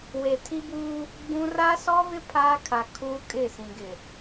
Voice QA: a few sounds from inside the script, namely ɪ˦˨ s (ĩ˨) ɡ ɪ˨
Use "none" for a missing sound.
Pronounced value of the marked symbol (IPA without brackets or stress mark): ĩ˨